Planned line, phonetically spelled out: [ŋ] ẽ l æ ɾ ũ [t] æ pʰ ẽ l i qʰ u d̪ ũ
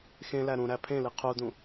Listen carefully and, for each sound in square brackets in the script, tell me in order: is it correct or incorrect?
incorrect: x, incorrect: ɾ

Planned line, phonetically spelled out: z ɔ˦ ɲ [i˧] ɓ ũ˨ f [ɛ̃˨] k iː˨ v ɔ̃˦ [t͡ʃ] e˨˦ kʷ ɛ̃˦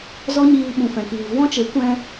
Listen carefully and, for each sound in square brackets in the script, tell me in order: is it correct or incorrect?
incorrect: iː˧, correct, correct

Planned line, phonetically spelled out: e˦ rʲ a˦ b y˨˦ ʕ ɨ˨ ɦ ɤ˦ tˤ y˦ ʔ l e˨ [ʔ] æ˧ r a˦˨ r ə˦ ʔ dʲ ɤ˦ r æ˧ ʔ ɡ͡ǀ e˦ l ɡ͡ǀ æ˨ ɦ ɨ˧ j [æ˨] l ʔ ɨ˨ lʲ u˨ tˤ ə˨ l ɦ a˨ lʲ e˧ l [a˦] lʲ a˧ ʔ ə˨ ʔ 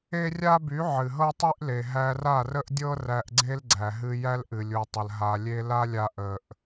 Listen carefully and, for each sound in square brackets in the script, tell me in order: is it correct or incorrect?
incorrect: ɦ, incorrect: æ˦, correct

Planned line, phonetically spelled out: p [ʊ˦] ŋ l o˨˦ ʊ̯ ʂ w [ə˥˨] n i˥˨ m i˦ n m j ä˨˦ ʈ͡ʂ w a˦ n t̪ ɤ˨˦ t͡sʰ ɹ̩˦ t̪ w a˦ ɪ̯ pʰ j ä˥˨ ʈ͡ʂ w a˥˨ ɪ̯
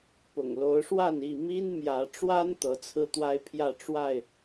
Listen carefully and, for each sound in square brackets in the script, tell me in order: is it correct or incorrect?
incorrect: ʊ̰˨˩, incorrect: a˥˨

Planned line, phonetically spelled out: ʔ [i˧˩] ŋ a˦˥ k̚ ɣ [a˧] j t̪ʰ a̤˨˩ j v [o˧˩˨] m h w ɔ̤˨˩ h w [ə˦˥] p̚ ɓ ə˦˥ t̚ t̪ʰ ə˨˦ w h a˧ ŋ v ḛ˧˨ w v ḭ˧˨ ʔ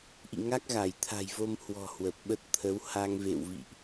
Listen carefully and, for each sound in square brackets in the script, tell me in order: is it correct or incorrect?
incorrect: ḭ˧˨, incorrect: a˧˩, incorrect: o˧, incorrect: ə˨˩

